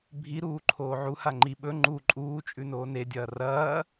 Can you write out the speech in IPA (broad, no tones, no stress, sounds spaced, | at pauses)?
bʱ i ɾ uː ǃʰ oː ʕ u h a ŋ͡ǃ i ɓ ɵ ŋ͡ǃ u ǃʼ uː t͡ʃʼ ʉ n oː n e dʲ ɐː r ɐː